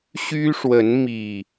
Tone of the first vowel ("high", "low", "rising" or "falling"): high